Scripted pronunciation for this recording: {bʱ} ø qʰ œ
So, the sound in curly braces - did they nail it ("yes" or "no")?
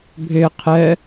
yes